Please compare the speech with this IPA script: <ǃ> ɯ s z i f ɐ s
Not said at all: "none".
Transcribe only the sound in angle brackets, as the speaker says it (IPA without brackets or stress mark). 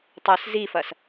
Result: tˤ